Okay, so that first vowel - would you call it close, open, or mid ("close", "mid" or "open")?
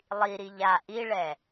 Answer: close